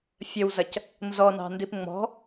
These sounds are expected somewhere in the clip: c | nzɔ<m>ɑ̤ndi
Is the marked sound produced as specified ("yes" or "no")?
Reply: no